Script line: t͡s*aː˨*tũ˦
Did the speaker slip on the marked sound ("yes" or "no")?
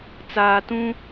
no